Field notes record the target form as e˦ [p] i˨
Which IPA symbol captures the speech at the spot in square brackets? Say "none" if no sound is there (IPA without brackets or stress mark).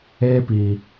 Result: p